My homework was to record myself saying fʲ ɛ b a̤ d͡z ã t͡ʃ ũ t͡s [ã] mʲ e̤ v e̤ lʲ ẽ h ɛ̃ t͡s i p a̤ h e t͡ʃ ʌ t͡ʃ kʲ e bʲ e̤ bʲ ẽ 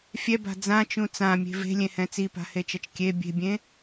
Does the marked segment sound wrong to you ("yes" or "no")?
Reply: no